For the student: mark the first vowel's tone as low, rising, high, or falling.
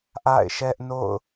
falling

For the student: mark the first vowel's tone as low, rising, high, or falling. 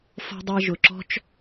high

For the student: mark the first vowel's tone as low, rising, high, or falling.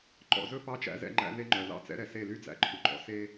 low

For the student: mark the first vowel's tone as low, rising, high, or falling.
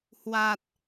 low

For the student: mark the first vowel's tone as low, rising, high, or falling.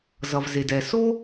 low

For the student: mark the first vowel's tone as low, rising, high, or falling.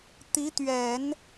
rising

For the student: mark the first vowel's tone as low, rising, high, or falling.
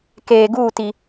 low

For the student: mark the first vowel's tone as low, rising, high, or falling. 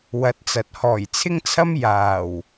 rising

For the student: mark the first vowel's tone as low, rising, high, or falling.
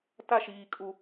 falling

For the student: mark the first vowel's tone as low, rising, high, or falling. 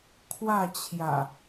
falling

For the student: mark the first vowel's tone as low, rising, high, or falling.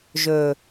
low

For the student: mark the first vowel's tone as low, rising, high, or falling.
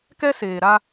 high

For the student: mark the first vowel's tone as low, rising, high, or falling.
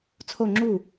falling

